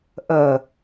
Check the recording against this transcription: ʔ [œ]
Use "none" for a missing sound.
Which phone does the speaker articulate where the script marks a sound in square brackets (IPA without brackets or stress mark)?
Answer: œ